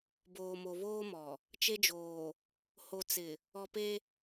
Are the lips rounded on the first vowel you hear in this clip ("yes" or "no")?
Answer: yes